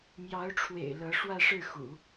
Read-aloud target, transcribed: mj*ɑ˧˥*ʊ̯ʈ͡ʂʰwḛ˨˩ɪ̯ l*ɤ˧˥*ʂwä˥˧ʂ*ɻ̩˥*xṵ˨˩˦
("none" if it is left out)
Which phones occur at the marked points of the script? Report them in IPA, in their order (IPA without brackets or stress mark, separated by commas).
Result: ɑ˧˥, ɤ˧˥, ɻ̩˥˩